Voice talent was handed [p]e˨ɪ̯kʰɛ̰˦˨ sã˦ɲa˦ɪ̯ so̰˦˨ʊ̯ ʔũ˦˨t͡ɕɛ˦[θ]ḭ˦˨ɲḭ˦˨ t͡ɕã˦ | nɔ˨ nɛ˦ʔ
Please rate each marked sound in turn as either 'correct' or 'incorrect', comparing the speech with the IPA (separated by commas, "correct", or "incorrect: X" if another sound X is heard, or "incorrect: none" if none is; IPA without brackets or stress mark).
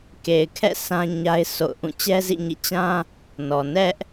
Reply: incorrect: k, incorrect: z